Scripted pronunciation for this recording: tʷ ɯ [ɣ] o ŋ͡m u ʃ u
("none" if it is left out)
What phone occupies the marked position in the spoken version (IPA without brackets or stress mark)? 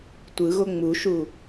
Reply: ɣ